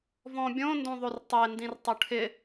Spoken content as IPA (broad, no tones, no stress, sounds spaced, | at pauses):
v ɔ̃ bʲ õ n d õ ðˤ o r tˤ e n d ĩ r tˤ u ʈʰ ɪ